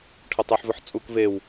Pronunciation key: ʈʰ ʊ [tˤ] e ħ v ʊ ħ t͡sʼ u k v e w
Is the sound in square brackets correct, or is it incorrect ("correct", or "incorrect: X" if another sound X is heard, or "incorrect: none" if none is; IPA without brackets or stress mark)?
correct